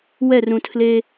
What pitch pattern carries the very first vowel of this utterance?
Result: falling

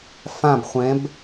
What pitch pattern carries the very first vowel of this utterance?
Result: falling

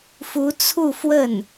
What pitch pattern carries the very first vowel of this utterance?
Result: rising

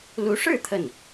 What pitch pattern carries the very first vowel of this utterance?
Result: rising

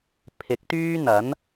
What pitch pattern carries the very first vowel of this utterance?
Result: rising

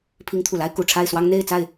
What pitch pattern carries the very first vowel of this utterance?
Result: rising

